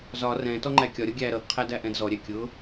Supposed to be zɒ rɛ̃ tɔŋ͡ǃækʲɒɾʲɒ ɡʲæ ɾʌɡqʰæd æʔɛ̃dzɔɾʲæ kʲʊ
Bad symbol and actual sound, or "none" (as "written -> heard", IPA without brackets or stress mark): none